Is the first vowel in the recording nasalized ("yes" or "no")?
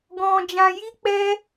yes